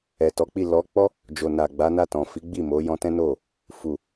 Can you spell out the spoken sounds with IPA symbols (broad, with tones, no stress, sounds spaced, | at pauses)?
ɛ˨ t ɔ˨˦ k͡p i˦˨ l ɔ˨˦ k͡p ɔ˦ | d͡ʒ o˨ n a˨ ɡ͡b a˨˦ n a˦˨ t ɔ̃˨ f i˨˦ ɡ͡b i˦˨ m o˨˦ j ɔ̃˧ t ɛ̃˦ n o˦˨ | f u˨